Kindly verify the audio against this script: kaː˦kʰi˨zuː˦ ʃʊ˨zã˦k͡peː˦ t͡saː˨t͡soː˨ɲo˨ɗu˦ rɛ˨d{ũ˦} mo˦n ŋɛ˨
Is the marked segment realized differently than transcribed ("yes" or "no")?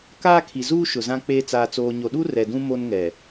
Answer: no